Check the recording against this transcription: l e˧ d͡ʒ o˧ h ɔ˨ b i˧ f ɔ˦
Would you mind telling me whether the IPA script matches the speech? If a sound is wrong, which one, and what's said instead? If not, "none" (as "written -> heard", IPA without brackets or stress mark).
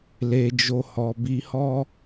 f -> h